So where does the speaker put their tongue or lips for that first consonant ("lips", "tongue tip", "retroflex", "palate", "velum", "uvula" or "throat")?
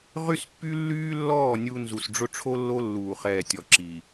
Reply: uvula